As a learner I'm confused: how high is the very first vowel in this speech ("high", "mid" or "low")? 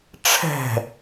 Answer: mid